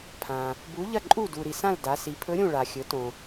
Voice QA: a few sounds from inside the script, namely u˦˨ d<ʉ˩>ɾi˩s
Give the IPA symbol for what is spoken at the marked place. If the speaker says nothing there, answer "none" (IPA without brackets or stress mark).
u˩